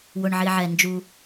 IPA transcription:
wʊ˩ɳʕi˩ʕɛ˩ nd͡ʒu˩

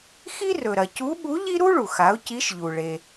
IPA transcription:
xi˥rɵ˩ɾɐ˩ cu˧˥ɓu˧˥ʎi˥ ɾu˥ɭu˩xa˩˧ʊ̯ ci˧˥ʃʎu˩ ɭe˩

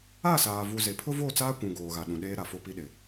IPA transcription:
a˦˨saː˨vu˨ ze˨ pʰʊ˦vo˦˨t͡saː˦kʷũ˨ ɡoː˨ɣa˨ɗũ˨ɗeː˦ ɾa˨fo˦pi˦ɗɪ˨

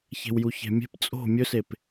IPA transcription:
çe̤wjuçe̤mʲe̤p t͡sʼo̤ mʲɵsep

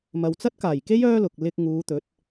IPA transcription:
mɐ˨wt͡sɐ˥t̚kaː˨˩jke˥j œː˥lʊ˨k̚ lɪ˧k̚ŋuː˨˧t̪ɵ˨˥t̚

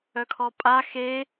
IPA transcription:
œkʰɔpʼa xe

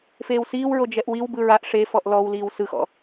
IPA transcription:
feːwsiːwɹo d͡ʒɛʔwiwbɯ ɹaʔ ʂefɔʔ lɔwliːw sɯxɔ̰

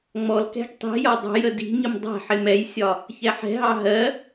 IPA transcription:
ŋ͡mɔlkɛ̤ɡ tˤi̤jɒ dˤə̤jə di̤ɲəm dˤɛ̤ ħɪmɛjsʲɒ | çɛħɛ̤ɦɑ ɦɜ

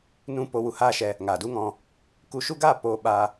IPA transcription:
nũ˦ po˧ wu˧haː˦ʃɛ˧ | ŋa˨du˦ŋɔ̃˧ | ku˧ʃu˦ɡaː˦˨ po˦ ɓa˦

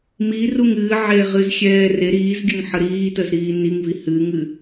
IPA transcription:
miruŋ ɨːʕeʁɨzxʲɛː re ɾiːzɡʲəŋħə ɾiːtəzɾiː niŋvi hɨŋɨ

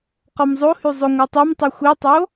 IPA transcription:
qɔmzˤohy zˤoŋʷə˞tˤymtˤi xʷitˤo

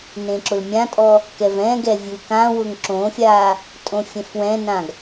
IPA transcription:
nẽǁʊlmʲãtʼɔ | kɛvɛ̃ɡɛ vʲukãwʊŋ ǁõfʲa | tʼõfʲɛ̃fwɛ̃nãɡ

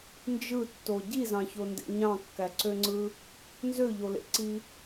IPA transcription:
nd͡ʒɯtːo ɟizɑ̃çondḛ ɲɑ̃kːæǀøŋ͡ǀɯ | nzøʎolḛǀi

